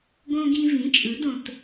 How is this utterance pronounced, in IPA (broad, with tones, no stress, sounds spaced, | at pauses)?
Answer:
ɡ õ˧ ɡ ĩ˧ v ĩ˩˥ t͡ʃʼ ɯ˩˥ d õ˧ t